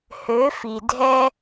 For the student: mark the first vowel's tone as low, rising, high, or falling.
rising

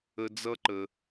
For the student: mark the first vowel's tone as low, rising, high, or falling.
high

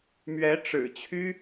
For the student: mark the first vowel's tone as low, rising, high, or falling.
rising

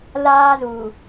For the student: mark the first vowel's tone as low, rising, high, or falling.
high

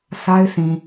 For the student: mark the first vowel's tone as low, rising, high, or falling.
high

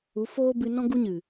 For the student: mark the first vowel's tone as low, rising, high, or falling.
rising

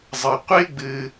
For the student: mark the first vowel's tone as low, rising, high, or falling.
low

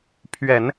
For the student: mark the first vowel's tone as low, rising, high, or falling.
low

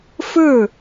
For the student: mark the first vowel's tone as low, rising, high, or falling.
falling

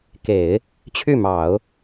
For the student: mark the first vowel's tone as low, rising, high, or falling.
low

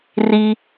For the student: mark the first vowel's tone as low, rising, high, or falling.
low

